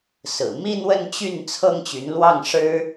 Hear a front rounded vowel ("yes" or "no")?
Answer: yes